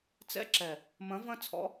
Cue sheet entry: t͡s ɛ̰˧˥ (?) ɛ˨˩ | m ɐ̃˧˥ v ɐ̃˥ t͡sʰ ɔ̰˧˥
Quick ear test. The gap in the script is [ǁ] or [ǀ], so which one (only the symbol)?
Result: ǁ